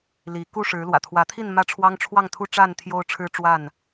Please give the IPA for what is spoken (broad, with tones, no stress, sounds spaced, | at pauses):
l i˨˦ k u˥˨ ʂ ɻ̩˨˦ l w ä̰˨˩ t̪ʰ w ä˨˦ t̪ʰ i˥˨ n m ä˥˨ ʈ͡ʂʰ w ɑ˦ ŋ ʈ͡ʂʰ w ɑ˥˨ ŋ t̪ʰ u˥˨ ʈ͡ʂ a˥˨ n t̪ʰ j o˦ ʊ̯ ʈ͡ʂʰ ɻ̩˦ ʈ͡ʂ w a˥˨ n